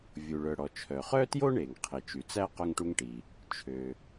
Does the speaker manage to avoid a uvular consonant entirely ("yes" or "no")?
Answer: no